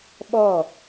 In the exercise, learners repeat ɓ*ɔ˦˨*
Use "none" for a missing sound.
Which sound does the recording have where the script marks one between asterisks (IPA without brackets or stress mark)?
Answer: ɔ˦˨